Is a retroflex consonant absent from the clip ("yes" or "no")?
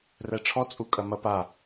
no